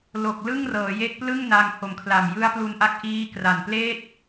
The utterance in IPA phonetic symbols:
lo˨˩k̚lɯ˥˩ŋrɤː˩˦ je˦˥k̚plɯ˥˩ŋna˧ŋ ho˨˩mkʰla˨˩m jɯ˦˥a̯plu˧nʔa˦˥k̚ ʔiː˦˥kra˨˩npleː˥˩t̚

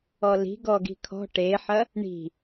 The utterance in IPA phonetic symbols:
ɔli̤ ɡɔɡi̤kʰɔ̤ ʈeħɐ | ɳi̤

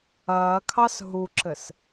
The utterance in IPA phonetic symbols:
ɐːkʰɑs ɦuǁɘs

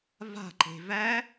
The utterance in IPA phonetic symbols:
va̤ǃe̤ væ

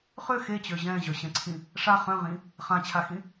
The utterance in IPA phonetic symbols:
χø xet͡ɕø ʑɛ̃ʑœɕɛ̃ǀʰĩ | ʂa χœ̃ʁĩ | χãt͡ɕʰaxĩ

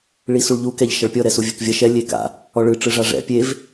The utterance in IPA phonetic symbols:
ɭisuɭʎu kɛʎʃɐɭpʲɔ ɾɛsuvʲɛkvʲɐ ʃɛ lʲeka̰ | ɔɭɯ ʈ͡ʂɯʐaʐɛ̰ pʲev

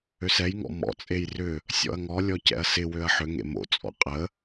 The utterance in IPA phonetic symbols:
øsɛjŋɔ̰ mɔ̰t͡sʼej rʏ | sʲɔ̰ɐ̯ŋɔlʲɔ cɛ̰ɐ̯sɪwøɐ̯ ħʏŋḛ mo̰t͡sʼɔ̰ qʼə

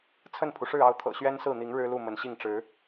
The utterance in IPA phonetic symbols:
t͡sʰə˥˨npʰu˩ʂɻ̩˥˨ɑ˥˨ʊ̯ t̪ʰɤ̰˨˩ɕɥɛ˦nsɹ̩˥˨n̪i˨˦ŋ ɻɻ̩˦lu˥˨ mə˨˦nɕi˥˨ŋ ʈ͡ʂɻ̩˨˦

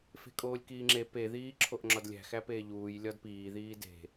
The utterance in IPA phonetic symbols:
fe̤kʼoːlʲkiːŋ͡ǁe pe ðiːǁʰoʔŋ͡ǁɒdlʲæ̤ xæpeːʎuːj lʲɒdpiː ðiːde̤

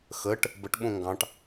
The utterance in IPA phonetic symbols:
xəʈ | bəʈ ɓõŋɡɑ̃ʈ

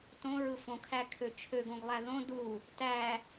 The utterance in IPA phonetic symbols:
tõɹɯ fõkʰækʰø t͡ʃʰøɡõɡlˠæ ðõ du | tæ

